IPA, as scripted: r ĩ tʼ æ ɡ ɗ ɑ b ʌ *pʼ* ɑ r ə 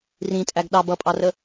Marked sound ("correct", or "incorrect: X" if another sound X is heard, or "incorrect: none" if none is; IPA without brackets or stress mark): correct